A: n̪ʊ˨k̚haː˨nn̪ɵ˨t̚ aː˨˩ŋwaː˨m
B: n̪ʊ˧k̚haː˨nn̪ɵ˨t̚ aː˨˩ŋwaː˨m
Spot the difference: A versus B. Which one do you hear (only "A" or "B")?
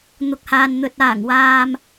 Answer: A